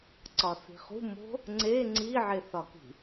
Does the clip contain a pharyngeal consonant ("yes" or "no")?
yes